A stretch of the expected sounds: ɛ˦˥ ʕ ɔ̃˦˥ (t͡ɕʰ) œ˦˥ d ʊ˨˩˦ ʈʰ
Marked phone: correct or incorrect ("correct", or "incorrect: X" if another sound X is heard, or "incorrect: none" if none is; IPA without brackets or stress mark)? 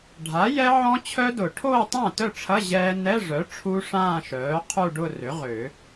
correct